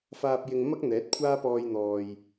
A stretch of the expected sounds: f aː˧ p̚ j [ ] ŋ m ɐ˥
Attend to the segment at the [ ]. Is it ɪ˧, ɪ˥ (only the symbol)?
ɪ˧